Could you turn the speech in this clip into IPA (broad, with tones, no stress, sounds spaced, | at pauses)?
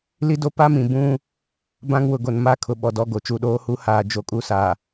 l i˦ d o˦ p a˦ m ĩ˨ b ũ˦ | b ã˦ ŋ w ʊ˨ ɡ o˨ n m a˦ kʰ ʊ˨ ɓ ɔ˨ d ɔ˦˨ ɡ o˨ t͡ʃ u˦˨ ɗ oː˦ h u˦ h aː˨ d͡ʒ o˨˦ kʼ u˦˨ s a˨